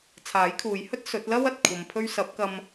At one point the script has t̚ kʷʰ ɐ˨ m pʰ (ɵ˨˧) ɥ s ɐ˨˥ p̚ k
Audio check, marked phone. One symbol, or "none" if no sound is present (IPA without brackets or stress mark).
ɵ˧